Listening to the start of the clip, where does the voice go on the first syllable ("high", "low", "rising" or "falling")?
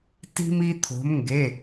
high